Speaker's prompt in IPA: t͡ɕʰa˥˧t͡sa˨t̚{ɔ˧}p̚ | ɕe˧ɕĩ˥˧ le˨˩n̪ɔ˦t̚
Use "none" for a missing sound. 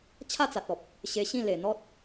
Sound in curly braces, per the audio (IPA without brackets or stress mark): ɔ˨